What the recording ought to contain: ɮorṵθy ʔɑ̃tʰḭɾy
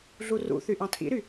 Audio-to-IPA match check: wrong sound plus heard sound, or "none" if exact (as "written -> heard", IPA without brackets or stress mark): o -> u